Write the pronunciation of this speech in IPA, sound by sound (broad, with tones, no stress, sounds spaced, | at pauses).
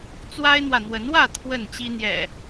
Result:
t͡s w a˦ ɪ̯ n̪ w ä˨ n̪ w ə˨˦ n w ä˥˨ t̪ʰ w ə˥˨ n t͡ɕ i˦ n̪ j ɛ̰˨˩